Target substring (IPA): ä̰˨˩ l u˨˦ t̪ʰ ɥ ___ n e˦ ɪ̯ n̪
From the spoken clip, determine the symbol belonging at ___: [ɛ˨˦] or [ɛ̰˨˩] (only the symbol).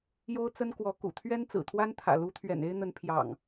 ɛ̰˨˩